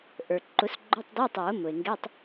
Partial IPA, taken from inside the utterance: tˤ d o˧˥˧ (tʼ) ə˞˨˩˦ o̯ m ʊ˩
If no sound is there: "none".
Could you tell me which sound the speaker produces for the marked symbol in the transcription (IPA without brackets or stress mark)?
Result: tˤ